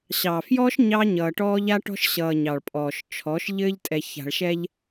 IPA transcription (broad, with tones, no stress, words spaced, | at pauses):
ɕɑ˨fjɔː˦ʃ ɲɑ˦ɲʌː˨ʈɔː˦ʎ a˦ʈɔ̤˦ʃɕʌː˨ ɲɑ˨ɭpʼɔː˨ʃt͡ʃʰɔ˨˦ʃ ʎɘː˦ʎtʼɛ˨ça̤˨ɭ ʃɛ˦ʎ